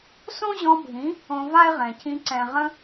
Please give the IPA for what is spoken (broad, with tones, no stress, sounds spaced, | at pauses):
s õ˦ ʑ ɔ̃˧ bʱ ĩ˨˦ | õ˧ v a˦ e̯ ʁ ɛ̃˨ c ĩ˧ ǀ ɛ̃˨ ʁ ə̃˧